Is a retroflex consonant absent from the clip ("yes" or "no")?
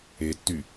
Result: yes